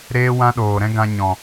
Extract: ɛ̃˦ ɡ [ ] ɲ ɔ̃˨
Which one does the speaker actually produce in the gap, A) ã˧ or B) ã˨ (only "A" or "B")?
A